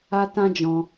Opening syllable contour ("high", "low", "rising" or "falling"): high